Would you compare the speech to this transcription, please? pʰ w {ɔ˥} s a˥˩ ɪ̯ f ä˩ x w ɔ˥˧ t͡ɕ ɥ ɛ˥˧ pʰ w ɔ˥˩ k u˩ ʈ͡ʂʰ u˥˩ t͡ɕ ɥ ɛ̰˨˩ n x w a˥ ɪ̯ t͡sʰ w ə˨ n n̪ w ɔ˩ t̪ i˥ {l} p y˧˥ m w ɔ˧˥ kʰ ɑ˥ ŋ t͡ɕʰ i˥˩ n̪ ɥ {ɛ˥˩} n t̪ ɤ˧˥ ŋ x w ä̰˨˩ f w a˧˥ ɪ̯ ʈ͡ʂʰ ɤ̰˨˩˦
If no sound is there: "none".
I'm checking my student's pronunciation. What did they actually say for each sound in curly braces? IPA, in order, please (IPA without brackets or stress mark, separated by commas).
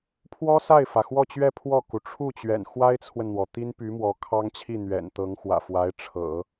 ɔ˥, n, ɛ̰˨˩